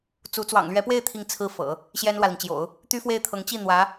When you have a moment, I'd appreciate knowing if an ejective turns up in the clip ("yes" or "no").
no